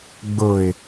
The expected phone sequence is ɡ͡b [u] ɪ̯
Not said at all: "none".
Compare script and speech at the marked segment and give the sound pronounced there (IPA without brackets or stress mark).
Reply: ʊ